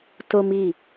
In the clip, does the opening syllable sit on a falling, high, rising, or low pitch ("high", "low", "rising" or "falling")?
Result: high